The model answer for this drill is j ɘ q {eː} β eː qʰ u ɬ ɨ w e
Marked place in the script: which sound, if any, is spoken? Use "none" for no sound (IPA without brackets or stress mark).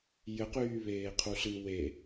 yː